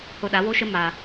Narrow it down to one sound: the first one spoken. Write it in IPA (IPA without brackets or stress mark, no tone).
h